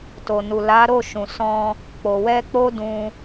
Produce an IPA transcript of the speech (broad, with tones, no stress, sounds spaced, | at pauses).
t o˨ n u˨ l a˨˦ ɾ o˦˨ ʃ ũ˨ s ɔ̃˧ | k͡p o˨ w ɛ˧ k͡p o˦ d ũ˧